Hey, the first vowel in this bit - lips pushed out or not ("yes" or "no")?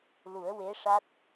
yes